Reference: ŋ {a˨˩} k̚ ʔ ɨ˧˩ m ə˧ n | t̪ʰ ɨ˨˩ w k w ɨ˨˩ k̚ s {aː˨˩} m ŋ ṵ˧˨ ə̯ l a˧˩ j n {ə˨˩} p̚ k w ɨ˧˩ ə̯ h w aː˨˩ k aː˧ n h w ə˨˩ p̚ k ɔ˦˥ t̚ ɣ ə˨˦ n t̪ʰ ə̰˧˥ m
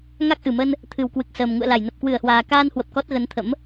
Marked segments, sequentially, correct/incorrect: incorrect, incorrect, correct

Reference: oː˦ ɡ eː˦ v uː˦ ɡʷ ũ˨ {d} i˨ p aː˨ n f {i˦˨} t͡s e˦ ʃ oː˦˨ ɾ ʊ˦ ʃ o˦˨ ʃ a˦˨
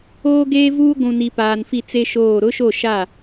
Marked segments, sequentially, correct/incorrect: incorrect, correct

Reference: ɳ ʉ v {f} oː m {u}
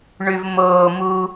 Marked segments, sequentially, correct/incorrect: incorrect, correct

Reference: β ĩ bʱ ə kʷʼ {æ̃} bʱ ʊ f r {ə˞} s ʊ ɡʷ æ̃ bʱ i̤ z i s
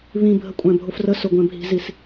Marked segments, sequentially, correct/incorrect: correct, incorrect

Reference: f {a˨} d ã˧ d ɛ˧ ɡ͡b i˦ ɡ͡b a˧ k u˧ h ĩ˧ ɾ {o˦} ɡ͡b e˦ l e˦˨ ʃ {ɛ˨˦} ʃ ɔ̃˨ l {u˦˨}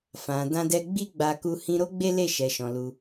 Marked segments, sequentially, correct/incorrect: incorrect, correct, incorrect, incorrect

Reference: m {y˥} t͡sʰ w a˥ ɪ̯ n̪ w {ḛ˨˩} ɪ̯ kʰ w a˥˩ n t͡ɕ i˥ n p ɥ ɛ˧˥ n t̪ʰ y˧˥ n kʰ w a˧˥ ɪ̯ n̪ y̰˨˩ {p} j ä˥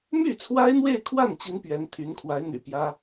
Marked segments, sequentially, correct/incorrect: incorrect, incorrect, correct

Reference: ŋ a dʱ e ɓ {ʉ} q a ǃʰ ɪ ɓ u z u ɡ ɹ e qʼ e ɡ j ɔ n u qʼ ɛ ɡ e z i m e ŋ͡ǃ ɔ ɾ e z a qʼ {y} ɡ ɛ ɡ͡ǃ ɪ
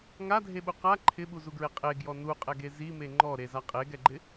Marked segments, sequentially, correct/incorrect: incorrect, incorrect

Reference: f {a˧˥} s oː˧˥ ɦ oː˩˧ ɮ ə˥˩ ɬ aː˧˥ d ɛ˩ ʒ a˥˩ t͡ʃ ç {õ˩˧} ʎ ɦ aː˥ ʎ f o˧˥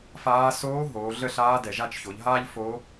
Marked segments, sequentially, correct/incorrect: incorrect, incorrect

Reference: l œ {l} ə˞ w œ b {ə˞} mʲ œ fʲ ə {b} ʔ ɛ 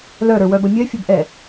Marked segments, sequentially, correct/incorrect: incorrect, incorrect, correct

